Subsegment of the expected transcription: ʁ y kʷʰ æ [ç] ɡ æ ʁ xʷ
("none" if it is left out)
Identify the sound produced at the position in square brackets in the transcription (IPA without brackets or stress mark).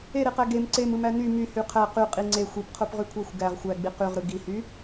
xʷ